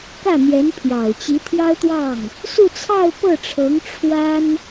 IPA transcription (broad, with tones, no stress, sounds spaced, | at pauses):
k ä˥˩ n̪ j ɛ˧˥ n pʰ j ɑ˨˩ ʊ̯ t͡ɕ i˧˥ t̪ʰ j ɑ˥ ʊ̯ t̪ w ɑ˥˩ ŋ | s u˥˧ t͡sʰ ɑ˥˧ ʊ̯ p ɤ˥˩ ʈ͡ʂʰ ɤ˧˥ ŋ ʈ͡ʂʰ w a˥ n